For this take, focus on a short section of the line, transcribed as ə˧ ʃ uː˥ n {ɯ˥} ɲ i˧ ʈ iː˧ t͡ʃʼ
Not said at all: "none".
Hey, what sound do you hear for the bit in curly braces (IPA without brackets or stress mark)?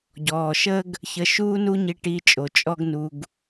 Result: u˥